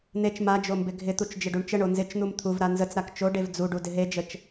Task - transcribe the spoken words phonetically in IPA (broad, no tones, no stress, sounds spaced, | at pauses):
n̪ e t͡ʃ m a d͡ʒ o m b ɪ ɡʱ ɪ t̪ u t͡ʃ d͡ʒ ɪ ɖ u ɳ t͡ʃ ə ɳ o n z ɪ t͡ʃ n̪ u m t̪ʰ u v ɾ a n z ə t͡s ɾ a k t͡ʃ o ɖ e v d͡z u ɖ u d ɪ ɦ e d͡ʒ ə t͡ʃ